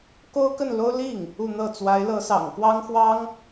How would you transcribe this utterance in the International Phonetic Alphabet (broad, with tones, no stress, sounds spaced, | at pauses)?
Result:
k o˥ ʊ̯ k ə˥˩ n l o˥ ʊ̯ l i˥˩ ŋ | u˥˧ n̪ ɤ˥˩ t͡s w a˧˥ ɪ̯ l ɤ˧˥ s ɑ̰˨˩ ŋ k w ɑ˥ ŋ x w ɑ˥ ŋ